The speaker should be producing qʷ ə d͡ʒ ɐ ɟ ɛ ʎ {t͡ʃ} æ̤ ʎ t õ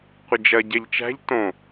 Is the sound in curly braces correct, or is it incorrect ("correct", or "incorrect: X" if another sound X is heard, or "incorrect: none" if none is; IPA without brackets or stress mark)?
correct